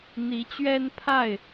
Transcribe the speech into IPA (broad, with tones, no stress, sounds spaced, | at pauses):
n̪ i˨˦ t͡ɕ ɥ ɛ˦ n pʰ a˥˨ ɪ̯